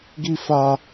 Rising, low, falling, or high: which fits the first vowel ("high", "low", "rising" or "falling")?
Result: high